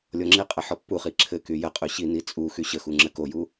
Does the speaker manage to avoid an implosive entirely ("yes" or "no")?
yes